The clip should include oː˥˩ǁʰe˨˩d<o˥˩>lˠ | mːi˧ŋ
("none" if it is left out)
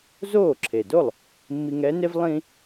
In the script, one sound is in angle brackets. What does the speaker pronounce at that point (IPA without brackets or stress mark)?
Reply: o˥˩